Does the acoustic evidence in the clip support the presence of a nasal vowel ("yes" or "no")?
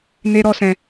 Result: yes